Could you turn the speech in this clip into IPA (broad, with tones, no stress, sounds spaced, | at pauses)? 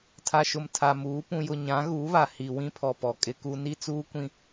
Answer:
tʰ a˨ ʃ ʊ˨ m tʰ a˨ m uː˨˦ p ũ˨ j ʊ˨ ɲ ã˨˦ ɣ uː˨˦ β a˨ h i˨ w ĩ˦ pʰ ɔ˨ p ɔ˨ kʼ ɪ˦ k u˦ n i˦ t͡s uː˦ kʷ ĩ˦